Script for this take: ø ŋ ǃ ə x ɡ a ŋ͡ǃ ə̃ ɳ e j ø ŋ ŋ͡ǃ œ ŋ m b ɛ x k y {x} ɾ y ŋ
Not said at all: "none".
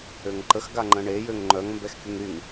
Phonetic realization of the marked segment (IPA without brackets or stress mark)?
ŋ